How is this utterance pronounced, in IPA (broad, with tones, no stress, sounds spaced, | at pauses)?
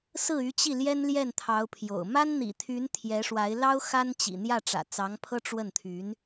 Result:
s ɹ̩˥˩ y˧˥ t͡ɕ i˥˩ l j ɛ˥ n l j ɛ˥˩ n t̪ʰ ɑ˧˥ ʊ̯ pʰ j o̰˨˩ ʊ̯ m a˥ n n̪ ḭ˨˩ t̪ʰ y˧˥ n t̪ʰ j ɛ˧˥ ʂ w a˧˥ ɪ̯ l ɑ˥ ʊ̯ x a˥ n t͡ɕ ḭ˨˩ n̪ j ä˥˩ ʈ͡ʂ ä̰˨˩ t͡s ɑ˧˥ ŋ pʰ ɤ˥ ʈ͡ʂ w ə˥˩ n t̪ʰ y˧˥ n